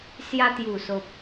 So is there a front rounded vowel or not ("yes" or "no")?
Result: no